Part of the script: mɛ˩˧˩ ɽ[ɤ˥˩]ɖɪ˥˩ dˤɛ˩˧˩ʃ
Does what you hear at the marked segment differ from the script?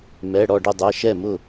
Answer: yes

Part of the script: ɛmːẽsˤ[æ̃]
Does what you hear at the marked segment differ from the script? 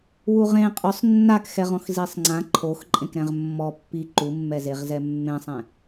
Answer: yes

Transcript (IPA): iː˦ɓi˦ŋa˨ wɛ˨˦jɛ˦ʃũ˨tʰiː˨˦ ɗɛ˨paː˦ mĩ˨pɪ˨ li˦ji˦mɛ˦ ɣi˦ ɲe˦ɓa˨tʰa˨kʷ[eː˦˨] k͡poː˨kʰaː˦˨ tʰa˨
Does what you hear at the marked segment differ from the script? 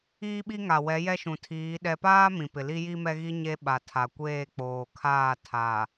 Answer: no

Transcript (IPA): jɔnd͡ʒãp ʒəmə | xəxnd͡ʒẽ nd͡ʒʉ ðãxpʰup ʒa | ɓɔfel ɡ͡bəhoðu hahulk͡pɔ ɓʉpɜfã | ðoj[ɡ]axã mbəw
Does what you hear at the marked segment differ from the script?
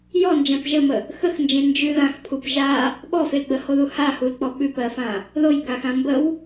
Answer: no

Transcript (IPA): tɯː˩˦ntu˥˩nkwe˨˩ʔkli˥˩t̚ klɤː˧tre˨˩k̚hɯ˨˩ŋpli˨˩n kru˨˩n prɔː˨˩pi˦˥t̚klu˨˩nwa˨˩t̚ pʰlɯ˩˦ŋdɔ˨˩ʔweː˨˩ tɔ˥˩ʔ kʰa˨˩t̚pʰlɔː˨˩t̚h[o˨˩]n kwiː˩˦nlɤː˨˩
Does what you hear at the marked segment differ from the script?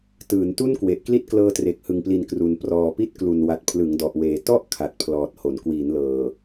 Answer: yes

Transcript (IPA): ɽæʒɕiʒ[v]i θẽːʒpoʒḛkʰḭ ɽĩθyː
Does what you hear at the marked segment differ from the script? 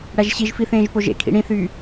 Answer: yes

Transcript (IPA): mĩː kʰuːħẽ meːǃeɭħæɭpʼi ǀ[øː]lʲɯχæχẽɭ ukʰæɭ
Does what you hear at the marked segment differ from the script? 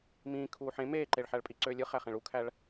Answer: no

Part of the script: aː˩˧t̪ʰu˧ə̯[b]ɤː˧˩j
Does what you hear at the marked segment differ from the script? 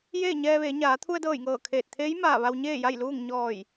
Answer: yes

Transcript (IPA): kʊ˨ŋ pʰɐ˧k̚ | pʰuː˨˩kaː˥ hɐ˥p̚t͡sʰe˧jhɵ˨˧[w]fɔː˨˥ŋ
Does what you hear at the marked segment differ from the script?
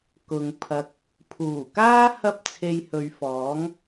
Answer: yes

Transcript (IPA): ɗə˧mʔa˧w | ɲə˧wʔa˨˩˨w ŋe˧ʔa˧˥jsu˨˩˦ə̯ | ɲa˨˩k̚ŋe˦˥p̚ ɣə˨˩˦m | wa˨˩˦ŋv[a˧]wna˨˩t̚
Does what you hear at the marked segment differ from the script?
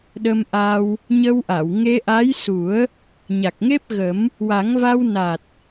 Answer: no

